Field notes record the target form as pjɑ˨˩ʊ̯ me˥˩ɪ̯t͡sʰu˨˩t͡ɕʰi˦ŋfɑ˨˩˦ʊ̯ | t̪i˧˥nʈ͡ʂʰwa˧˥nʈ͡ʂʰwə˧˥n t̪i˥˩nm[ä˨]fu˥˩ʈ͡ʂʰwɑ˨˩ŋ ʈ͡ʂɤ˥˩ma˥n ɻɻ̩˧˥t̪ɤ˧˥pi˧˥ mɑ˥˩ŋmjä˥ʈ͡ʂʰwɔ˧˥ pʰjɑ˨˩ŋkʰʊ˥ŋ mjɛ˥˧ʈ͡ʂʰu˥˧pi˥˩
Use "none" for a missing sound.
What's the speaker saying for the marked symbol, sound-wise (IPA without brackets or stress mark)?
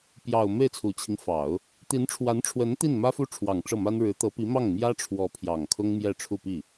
ä˥